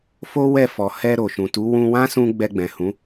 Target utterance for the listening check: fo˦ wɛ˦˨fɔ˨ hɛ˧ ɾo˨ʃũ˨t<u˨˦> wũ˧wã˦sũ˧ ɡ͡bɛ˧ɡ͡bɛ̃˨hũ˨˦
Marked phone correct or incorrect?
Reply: correct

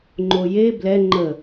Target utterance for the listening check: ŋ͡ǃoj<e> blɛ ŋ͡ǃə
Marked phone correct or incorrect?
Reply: correct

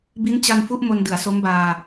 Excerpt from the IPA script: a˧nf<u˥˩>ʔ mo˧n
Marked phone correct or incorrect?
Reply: incorrect: u˦˥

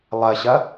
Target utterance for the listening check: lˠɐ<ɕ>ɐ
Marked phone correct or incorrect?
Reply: correct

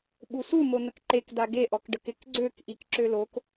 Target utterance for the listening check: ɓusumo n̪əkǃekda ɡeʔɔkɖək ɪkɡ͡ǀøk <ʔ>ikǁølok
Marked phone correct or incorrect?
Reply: correct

